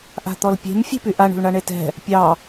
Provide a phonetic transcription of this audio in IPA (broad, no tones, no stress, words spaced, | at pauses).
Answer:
ʔa̤t̪ɔlpʲe̤m fʲe̤pyʔaɳ ṳlɳaɳetɛ̤ | pʲɑ